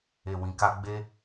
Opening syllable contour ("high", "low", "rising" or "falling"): low